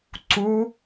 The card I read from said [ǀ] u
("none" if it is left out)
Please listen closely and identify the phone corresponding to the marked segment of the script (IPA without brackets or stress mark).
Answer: ǀ